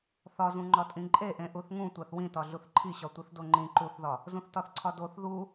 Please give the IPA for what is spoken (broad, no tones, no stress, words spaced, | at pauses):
θɒzũ ŋ͡ǃɒtʼĩǃʼeʔẽ ʔuθŋũ tʷæθwĩtɒ ɮuθǃʰiɕɒtʷiθ doŋ͡ǃĩ ǃuθðɒ | zũθtɒθǀʰɒdoθ ðu